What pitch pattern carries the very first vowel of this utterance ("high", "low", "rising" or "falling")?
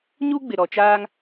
high